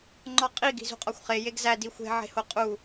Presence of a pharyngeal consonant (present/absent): present